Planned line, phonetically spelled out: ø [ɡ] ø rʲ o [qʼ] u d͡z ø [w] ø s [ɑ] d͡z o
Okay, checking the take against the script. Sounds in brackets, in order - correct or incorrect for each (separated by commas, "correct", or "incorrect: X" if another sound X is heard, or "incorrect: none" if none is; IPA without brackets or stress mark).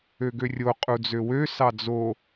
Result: correct, correct, correct, correct